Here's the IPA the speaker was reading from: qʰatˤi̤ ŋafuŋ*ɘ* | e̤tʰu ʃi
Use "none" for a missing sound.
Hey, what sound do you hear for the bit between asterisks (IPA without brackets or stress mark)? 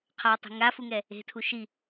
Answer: ɛ